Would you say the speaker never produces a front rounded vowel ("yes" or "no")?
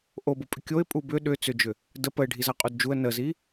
no